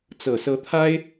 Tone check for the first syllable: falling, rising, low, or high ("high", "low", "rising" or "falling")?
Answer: low